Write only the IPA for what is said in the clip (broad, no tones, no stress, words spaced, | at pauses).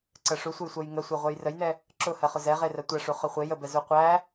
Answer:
ǀɜʂusʷəjsʷɜj ŋəsʷeʁʷɛj rəjnɛ | ǁʊhɜχʊ zɛʁe rɜtʷæʂu χʊχʷe jəbɛ zuqʷæ